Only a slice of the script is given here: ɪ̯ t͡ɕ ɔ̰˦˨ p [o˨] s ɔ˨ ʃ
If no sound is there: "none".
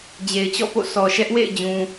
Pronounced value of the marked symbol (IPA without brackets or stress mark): o̰˦˨